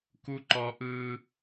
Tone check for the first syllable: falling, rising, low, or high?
high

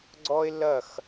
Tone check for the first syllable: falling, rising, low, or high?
high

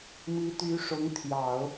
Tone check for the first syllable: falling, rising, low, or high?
rising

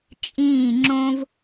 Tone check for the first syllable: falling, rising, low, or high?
falling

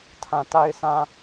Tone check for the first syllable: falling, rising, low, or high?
low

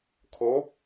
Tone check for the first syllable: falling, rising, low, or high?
rising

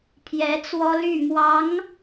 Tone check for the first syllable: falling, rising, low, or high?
rising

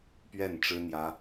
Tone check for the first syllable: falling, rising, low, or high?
falling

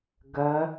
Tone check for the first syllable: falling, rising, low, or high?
rising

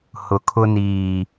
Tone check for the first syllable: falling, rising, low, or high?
low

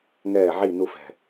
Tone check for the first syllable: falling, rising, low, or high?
low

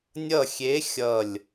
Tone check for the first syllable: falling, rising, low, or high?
falling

